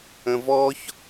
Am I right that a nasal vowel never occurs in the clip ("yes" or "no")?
no